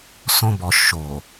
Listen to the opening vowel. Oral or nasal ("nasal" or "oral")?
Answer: nasal